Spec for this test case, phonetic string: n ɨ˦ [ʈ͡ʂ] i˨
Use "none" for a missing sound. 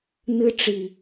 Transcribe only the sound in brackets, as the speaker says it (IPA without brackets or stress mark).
ʈ͡ʂ